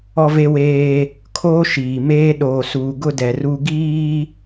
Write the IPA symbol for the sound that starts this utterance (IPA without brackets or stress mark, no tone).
ɔ